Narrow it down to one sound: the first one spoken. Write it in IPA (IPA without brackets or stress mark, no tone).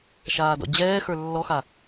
ʃ